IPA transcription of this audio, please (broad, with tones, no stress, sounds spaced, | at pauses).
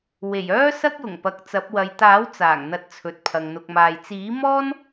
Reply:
w e˨˩ j œː˥ s ɐ˥ k̚ j ʊ˨˩ ŋ p ɐ˨ k̚ t͡s ɐ˨˥ p̚ w ɐ˨˧ j t̪ aː˨˥ w t͡s aː˨˩ ŋ n̪ ɐ˧ t̚ t͡sʰ ɵ˨ t̚ pʰ ɐ˨ ŋ n̪ ʊ˨ k̚ m aː˨ j t͡s iː˨˥ m ɔː˥ n